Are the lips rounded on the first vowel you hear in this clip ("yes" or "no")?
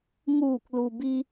yes